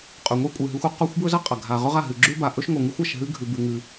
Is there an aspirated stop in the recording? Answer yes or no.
no